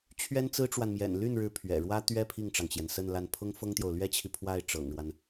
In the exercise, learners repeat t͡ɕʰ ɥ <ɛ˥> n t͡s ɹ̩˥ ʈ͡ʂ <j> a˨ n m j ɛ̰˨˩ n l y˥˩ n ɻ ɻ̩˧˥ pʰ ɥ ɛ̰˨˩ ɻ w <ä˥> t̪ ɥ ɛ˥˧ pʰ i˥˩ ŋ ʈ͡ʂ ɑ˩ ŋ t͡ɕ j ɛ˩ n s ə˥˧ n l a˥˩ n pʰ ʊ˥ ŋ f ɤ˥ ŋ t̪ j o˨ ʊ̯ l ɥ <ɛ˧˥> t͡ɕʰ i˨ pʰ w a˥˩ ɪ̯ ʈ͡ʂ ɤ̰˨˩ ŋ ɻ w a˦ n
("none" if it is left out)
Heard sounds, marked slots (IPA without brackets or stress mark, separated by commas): ɛ˥, w, ä˥, ɛ˥